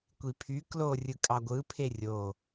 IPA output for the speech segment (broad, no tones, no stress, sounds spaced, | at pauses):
kʷ i pʰ y k l o rʲ ɯ kʼ ɑ ɡʷ ɯ pʰ e rʲ o